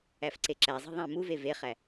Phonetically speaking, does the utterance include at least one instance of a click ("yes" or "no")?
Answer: yes